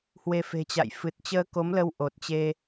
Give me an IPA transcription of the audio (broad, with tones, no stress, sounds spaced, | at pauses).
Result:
h w e˧ f e̤˨˩ t͡ɕ a̰˧˨ j f ɨ˨˩ t̚ t͡ɕ əː˧ k o˨˦ m l ə˧ w ʔ o˨˩ t̚ t͡ɕ e˧